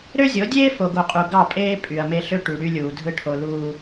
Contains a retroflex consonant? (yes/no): yes